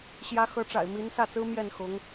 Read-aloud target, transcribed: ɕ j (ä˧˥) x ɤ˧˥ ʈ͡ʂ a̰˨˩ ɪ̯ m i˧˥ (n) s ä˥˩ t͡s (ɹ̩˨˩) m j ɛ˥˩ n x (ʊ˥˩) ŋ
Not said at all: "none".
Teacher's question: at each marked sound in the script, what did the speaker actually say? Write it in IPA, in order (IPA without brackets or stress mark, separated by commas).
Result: ä˧˥, n, ɹ̩˥, ʊ˧˥